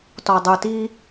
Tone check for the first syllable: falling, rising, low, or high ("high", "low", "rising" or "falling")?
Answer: low